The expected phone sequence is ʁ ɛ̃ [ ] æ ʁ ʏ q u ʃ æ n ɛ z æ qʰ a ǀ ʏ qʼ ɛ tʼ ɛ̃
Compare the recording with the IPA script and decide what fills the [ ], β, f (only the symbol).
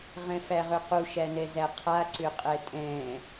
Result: f